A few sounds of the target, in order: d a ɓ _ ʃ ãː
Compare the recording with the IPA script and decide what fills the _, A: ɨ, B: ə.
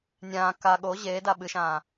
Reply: A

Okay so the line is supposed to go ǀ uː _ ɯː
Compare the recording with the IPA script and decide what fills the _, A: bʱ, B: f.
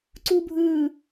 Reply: A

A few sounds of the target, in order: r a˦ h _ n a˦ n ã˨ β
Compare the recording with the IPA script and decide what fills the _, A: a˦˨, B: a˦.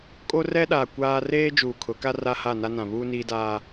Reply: A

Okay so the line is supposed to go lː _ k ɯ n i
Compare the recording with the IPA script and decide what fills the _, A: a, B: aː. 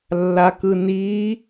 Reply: A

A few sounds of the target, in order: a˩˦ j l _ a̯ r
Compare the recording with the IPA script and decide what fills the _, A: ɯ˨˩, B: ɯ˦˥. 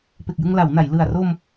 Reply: A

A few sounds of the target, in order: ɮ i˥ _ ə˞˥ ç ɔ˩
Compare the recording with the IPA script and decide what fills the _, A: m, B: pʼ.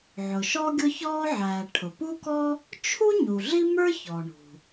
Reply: A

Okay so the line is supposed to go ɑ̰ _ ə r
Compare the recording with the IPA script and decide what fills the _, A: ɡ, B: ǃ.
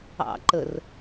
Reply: B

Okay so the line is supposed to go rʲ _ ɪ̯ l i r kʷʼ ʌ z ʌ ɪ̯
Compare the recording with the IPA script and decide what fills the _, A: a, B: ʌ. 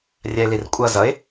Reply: A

